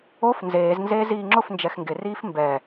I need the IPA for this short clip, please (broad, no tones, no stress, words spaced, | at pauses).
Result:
of nzeːznzeː ziːŋ͡ǁʊf nd͡ʒɛxŋɡɪ riːfmbɛ